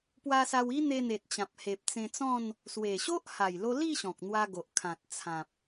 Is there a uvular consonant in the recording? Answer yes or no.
no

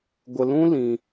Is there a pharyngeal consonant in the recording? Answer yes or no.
no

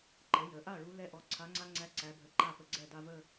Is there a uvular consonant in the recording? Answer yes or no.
no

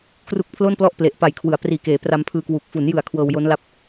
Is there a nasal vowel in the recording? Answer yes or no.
no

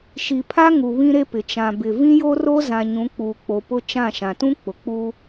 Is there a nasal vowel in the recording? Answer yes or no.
yes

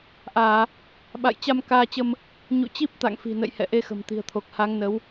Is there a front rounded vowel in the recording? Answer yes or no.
no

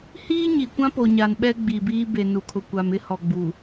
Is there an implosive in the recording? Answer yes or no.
yes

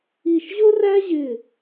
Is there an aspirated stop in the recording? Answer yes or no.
no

